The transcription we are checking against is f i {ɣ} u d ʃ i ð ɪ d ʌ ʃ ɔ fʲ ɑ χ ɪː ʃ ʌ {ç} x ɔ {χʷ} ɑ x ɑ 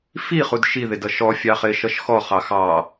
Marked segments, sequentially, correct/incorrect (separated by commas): incorrect, incorrect, incorrect